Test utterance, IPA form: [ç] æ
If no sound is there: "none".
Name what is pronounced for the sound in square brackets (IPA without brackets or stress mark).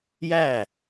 j